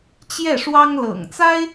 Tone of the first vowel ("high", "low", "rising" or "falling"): falling